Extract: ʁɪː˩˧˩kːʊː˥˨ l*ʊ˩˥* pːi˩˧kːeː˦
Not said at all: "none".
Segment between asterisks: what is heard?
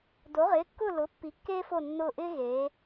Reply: ʊ˩˥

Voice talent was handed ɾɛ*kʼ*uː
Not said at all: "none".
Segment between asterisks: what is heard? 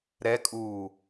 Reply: kʼ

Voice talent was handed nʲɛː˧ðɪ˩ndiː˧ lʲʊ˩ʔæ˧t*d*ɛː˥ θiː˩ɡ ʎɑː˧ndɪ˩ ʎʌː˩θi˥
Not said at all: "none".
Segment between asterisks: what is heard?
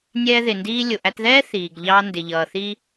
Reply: ð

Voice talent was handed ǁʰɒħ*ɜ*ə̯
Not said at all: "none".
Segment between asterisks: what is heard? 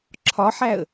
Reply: æ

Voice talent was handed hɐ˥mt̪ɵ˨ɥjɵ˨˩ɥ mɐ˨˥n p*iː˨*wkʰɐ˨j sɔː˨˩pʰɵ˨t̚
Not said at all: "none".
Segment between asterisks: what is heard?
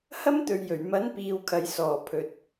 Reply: iː˨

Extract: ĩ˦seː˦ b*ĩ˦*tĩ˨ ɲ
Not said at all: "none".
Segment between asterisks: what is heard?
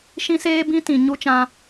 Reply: ĩ˦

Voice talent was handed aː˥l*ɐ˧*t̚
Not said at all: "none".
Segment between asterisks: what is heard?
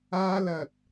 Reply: ɐ˧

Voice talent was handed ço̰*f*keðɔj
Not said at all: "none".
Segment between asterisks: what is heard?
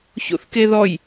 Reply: θ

